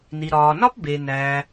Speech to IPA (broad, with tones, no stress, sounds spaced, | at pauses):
n i˩ ɾ ɒː˩ n ɒ˥ p b e˩ n æ˩